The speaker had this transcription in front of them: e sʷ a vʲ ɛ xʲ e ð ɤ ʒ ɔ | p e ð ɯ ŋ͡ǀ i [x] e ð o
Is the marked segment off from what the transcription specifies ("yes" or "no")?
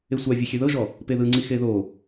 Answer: no